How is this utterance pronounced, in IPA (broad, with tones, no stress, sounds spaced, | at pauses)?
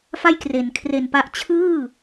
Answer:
f a˥˩ j k r e˩˦ n kʰ r e˨˩ n p a˦˥ ʔ t͡ɕʰ ɯː˥˩